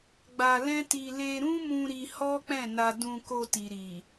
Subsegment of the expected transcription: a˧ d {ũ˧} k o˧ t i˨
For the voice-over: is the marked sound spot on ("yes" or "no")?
yes